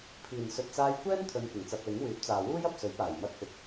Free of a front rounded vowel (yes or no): no